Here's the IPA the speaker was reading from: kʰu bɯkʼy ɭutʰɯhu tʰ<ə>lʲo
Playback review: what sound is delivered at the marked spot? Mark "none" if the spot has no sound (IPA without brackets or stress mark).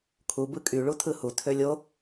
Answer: ø